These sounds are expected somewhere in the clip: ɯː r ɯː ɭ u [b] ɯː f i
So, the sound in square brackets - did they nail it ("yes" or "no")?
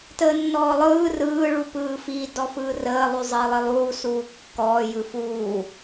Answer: no